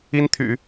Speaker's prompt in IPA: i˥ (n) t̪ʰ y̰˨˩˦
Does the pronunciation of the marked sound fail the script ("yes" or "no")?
no